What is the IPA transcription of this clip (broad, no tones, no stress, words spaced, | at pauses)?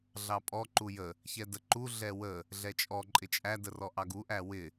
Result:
ɮɑpʼɔ ǃujə | çɛdəǃu ɮɛwə | ɮɛt͡ʃʼɔ ǃʼɪt͡ʃʼæ dərɔʔɑɡu ʔæwɪ